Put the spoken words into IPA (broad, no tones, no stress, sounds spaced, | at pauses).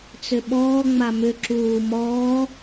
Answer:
t͡s ʏ ɓ ɔː ŋ͡m a m ʏ ǁ uː m ɔː